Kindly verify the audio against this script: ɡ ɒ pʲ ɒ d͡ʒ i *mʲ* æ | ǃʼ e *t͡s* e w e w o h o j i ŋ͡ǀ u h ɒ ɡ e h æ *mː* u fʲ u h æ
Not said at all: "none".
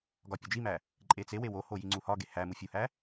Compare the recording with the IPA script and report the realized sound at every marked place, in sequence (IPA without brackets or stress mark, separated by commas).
m, t͡s, m